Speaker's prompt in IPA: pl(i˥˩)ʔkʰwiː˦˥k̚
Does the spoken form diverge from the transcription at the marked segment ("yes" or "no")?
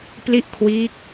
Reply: no